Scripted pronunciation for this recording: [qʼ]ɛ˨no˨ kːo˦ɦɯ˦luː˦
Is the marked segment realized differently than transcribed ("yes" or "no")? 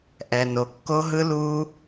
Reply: yes